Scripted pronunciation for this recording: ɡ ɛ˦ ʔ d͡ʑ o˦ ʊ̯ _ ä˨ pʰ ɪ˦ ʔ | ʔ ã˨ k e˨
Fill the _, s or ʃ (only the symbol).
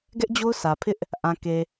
s